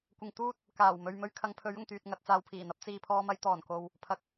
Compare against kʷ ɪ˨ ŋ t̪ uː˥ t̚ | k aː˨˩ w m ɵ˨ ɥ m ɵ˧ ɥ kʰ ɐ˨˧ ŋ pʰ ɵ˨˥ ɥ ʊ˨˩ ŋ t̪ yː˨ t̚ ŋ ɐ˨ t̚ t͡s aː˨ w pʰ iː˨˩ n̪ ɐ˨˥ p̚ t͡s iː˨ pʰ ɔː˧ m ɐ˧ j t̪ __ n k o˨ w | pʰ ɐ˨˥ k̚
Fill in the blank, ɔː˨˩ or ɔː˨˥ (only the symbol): ɔː˨˩